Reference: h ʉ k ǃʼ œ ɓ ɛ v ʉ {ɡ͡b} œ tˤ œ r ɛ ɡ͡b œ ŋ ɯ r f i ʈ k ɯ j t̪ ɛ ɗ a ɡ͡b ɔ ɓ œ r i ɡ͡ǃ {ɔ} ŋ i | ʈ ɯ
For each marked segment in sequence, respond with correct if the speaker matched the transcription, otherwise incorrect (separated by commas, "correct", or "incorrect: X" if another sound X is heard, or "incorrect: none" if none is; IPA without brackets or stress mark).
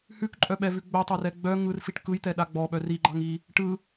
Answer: correct, incorrect: ɑ